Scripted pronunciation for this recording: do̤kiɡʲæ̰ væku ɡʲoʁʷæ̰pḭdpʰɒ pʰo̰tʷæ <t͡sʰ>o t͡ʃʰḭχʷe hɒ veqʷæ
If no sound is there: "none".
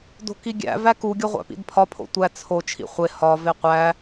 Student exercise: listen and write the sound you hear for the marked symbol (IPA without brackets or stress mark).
t͡sʰ